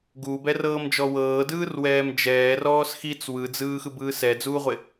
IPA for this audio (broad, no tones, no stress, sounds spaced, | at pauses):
ɡ uː b ɛ r ɤː m d͡ʒ ɔ w ɤː d ɯː r w ɛː m d͡ʒ ɛː r ɔː s x i t͡s w ɯ d͡z ɯː x ɯ b ɯː s ɛ d͡z uː ʁʷ e